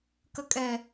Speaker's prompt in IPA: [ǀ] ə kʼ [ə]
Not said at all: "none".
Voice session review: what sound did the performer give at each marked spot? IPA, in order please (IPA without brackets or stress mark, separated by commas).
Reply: k, ɛ